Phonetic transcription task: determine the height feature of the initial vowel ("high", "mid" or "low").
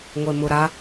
mid